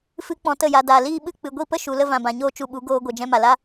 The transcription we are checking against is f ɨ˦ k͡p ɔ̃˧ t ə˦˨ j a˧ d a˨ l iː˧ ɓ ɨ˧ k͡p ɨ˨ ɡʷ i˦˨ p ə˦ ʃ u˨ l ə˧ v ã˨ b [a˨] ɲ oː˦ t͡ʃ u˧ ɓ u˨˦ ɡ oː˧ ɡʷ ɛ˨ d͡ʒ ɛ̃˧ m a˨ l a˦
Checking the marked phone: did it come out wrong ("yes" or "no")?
yes